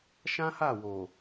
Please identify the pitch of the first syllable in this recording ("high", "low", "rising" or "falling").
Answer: high